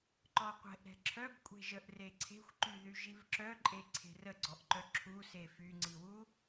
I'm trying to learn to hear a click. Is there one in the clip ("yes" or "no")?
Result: yes